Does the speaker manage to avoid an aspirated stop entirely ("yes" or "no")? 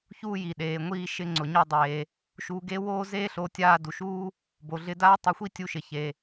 yes